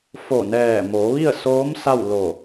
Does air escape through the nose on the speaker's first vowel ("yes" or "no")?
no